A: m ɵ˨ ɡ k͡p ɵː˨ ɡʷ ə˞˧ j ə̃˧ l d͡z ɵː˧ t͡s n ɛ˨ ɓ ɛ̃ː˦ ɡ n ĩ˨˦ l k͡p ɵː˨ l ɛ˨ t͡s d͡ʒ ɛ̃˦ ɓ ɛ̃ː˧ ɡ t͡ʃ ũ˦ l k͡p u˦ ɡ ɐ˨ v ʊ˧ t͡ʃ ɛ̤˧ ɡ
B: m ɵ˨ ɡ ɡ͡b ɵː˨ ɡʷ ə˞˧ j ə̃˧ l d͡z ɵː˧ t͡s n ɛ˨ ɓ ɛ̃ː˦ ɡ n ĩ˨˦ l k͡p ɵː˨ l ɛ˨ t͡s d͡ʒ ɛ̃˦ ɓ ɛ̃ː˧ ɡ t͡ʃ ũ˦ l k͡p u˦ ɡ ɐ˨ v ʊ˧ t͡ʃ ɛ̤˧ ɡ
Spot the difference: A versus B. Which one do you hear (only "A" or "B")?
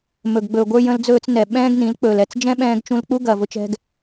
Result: B